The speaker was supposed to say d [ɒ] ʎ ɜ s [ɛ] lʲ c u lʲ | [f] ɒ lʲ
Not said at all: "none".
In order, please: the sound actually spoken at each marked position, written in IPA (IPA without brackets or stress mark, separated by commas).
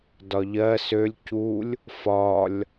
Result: ɒ, ø, f